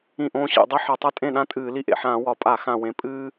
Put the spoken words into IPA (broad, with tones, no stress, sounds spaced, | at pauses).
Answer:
ĩ˥˩ ʔ õː˥ ɕ ḭ˧˩˧ dˤ i˥ ħ ʌ˨˩ tˤ ʌ˥ tʼ ẽ˥˩ ɗ ã˥ tʼ ɨː˧˩˧ l i˥˩ ʔ ḛ˨˩ ħ ãː˧˩˧ w ɒ˨˩ pʼ a˧˩˧ x ã˨˩ w ẽ˨˩ pʼ ɨː˥